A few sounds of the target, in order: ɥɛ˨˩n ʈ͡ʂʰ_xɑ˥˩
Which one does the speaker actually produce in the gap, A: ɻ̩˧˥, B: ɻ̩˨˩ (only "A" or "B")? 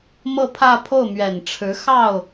A